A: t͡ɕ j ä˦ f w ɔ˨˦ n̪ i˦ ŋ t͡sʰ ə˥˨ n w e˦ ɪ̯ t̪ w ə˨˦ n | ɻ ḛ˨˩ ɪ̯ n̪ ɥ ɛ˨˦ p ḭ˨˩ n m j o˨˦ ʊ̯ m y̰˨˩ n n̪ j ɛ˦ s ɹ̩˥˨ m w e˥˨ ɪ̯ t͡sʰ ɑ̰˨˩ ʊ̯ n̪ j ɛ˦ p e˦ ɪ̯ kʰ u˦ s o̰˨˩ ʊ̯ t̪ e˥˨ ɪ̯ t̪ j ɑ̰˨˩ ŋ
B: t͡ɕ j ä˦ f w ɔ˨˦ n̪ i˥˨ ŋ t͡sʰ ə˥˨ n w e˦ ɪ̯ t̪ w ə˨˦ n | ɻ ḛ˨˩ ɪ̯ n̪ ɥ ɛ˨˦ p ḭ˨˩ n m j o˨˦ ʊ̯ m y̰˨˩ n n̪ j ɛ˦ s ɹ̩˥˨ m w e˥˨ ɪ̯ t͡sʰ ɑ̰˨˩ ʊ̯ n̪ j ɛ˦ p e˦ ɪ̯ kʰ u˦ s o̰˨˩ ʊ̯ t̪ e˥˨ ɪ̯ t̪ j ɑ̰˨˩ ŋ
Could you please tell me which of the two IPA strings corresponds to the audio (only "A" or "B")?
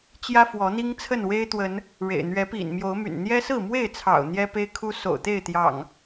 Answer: A